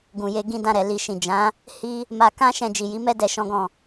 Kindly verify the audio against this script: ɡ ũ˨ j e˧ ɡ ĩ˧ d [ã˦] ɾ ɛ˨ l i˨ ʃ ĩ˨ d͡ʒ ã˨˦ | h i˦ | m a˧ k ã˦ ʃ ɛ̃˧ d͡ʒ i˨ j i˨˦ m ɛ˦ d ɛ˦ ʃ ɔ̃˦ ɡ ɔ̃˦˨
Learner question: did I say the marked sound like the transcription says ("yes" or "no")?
no